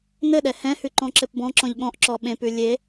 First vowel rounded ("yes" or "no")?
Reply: no